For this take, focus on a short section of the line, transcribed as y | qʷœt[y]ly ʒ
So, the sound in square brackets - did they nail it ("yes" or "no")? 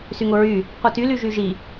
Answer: yes